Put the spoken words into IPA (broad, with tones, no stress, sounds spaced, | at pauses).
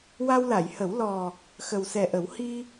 w a˧ w l a˨˩˨ j h ə˨˩˦ w l ɔ˨˩ | x ə˨˩ w s ɛ˨˩ ʔ ə˨˩˦ w h i˧